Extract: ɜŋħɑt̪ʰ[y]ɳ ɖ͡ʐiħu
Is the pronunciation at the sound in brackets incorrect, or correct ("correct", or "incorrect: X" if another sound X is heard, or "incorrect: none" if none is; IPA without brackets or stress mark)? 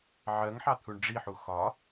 incorrect: u